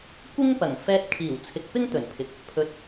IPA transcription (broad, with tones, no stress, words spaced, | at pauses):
kʷɪ˥ŋpɐ˨˩ŋfɛː˧t̚ kʰiː˨˩wt͡sʰɪ˨k̚ pɪ˥ŋt̪ɵ˨˩npʰɪ˨k̚ | pʰɵ˨t̚